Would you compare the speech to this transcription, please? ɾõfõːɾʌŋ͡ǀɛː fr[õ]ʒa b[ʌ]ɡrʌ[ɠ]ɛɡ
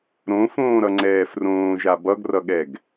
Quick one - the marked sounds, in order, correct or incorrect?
incorrect, correct, correct

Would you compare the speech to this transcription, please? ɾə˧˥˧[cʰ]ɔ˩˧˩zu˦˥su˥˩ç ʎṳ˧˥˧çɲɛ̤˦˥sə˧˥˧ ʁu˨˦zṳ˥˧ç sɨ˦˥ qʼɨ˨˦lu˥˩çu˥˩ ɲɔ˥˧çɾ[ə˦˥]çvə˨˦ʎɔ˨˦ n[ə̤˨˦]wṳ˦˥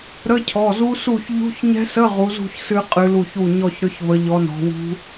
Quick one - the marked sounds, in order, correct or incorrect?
correct, incorrect, incorrect

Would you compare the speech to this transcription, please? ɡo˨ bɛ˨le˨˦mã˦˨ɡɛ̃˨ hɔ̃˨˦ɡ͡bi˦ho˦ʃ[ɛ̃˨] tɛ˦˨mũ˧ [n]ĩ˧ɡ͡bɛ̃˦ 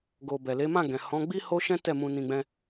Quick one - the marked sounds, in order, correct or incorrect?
incorrect, correct

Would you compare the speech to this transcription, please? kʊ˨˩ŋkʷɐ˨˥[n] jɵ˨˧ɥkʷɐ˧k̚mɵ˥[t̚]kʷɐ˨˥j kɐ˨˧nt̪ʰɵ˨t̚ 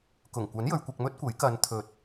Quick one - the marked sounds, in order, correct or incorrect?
correct, correct

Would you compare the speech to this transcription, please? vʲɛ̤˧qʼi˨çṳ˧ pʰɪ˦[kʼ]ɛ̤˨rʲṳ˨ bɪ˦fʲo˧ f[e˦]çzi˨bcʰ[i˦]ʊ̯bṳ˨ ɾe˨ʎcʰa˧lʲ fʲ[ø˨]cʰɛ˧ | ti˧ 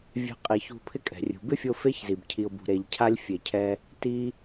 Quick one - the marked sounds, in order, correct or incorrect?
correct, correct, incorrect, incorrect

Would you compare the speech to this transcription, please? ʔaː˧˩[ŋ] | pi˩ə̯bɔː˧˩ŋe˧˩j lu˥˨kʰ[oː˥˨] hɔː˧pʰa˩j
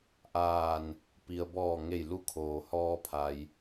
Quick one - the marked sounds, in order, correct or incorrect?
incorrect, incorrect

